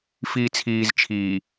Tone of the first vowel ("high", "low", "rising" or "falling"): low